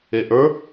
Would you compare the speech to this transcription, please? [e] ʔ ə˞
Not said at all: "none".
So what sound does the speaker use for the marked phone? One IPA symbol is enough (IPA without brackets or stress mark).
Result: e